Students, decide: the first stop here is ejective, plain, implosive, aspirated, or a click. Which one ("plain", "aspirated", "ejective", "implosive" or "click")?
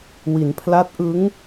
aspirated